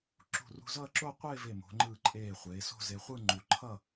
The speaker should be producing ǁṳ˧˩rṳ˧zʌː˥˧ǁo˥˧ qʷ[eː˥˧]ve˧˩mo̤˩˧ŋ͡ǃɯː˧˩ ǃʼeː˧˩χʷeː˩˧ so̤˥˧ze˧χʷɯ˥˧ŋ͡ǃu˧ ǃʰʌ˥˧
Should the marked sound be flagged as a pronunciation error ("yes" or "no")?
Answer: no